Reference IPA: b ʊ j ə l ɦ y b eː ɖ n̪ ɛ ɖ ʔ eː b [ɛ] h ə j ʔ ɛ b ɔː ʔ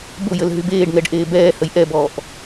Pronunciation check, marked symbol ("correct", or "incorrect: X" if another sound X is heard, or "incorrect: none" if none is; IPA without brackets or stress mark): incorrect: ɛː